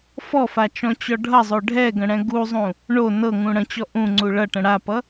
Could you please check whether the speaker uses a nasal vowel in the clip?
yes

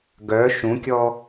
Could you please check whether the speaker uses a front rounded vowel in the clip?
yes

